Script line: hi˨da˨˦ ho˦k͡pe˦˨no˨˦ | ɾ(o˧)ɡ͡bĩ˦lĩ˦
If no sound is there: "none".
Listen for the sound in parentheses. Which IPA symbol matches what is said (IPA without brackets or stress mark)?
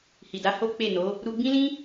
u˧